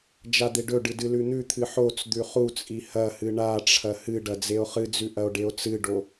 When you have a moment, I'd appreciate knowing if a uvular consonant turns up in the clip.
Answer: yes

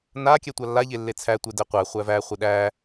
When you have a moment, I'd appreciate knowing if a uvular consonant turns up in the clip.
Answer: yes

